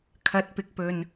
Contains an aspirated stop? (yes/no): yes